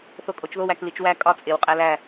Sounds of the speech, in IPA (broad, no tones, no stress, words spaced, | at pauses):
θokʼot͡ʃðow æklit͡ʃwæ kʼɒ t͡sʼew qʼælæ